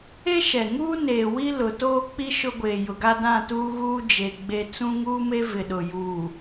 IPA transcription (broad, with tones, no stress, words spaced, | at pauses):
e˦ʃɛ˨ ŋuː˦neː˨ wi˦lʊ˨toː˦k͡pi˦ ʃʊ˦ɡʷeː˨ jʊ˨ɡa˦dã˦˨tuː˦ ɣuː˦d͡ʒe˨ ɡ͡be˨ t͡sũ˦ŋuː˦me˦ vɪ˨ɗʊ˨ juː˨